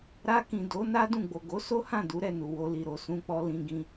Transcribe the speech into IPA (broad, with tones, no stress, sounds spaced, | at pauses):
ɾ a˧ k ĩ˨ d o˨˦ n a˦ d ũ˦˨ ɡ͡b o˨ ɡ o˨˦ s o˦ h ã˦˨ d u˨˦ ɾ ɛ˦˨ n u˨ w o˧ l i˨ ɾ o˨ s ũ˧ k͡p ɔ˧ l ĩ˧ ɡ ĩ˧